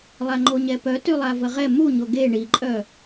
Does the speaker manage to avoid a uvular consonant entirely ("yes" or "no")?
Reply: no